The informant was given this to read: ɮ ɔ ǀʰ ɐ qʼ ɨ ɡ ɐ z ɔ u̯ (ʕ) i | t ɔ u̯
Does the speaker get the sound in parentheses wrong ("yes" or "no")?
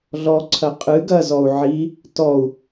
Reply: no